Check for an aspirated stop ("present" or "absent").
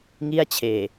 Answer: present